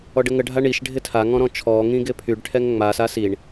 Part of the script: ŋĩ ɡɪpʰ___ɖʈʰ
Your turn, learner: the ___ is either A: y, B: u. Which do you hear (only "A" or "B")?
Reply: A